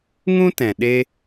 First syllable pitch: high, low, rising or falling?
high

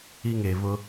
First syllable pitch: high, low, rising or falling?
high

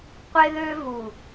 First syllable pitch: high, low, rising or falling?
high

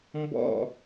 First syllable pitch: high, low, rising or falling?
falling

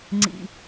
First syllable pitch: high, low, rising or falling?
low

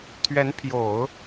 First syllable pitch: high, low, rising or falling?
rising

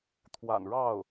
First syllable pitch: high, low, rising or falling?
low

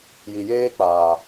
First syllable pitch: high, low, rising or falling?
low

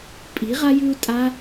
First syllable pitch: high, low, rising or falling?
rising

